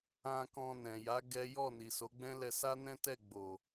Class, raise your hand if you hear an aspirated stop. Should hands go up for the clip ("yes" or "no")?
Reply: no